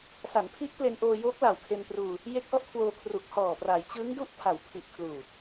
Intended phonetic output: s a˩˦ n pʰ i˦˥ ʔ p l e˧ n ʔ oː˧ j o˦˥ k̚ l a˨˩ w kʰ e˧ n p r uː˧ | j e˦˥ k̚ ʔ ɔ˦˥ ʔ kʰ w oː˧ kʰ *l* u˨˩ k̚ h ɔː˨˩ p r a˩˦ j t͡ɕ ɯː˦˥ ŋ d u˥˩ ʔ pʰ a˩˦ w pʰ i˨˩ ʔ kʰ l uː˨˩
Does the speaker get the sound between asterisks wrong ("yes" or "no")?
yes